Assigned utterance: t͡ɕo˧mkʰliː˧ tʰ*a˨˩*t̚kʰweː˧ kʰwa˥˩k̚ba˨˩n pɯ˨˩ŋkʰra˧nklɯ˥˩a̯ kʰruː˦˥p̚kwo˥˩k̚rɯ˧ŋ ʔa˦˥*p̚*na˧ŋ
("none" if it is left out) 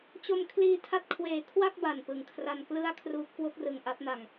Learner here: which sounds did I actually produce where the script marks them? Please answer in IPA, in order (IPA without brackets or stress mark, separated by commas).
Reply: a˥˩, p̚